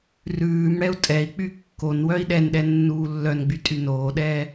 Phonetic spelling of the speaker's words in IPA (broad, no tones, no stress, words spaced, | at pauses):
rʉːmɽɛu̯ tʼɛi̯k͡py kːon wœi̯ɗɛnɗɛ nːuːlːœnɡ͡by tʼynoːɗɛː